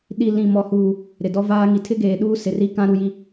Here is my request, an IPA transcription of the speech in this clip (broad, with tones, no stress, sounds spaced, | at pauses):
ɗ i˨ l ĩ˨ m ɔ˨ h uː˨ | ɾ ɪ˨ d ɔ˦ v aː˦ ŋ i˨ tʰ ɪ˦ ɡ eː˨ ɗ uː˦ s ɪ˨ r i˦ k ã˦ ɾ u˦ j i˦